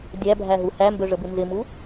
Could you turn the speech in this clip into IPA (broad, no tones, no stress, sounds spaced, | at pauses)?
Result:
dʲ æ bʱ æ ɦ u h æ m b ø ʐ ə b ɪ n z ɪ m u